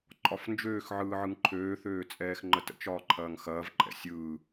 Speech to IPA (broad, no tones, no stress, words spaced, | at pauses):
ǃʼɒfnd͡ʒøːx ʕɯːʕɯŋǃʰøː θøːt͡sʼɛːxŋ͡ǃətə̰t͡ʃ ɒːǃʰɐːŋxɐːv ǃʼɛ̰sʲɯː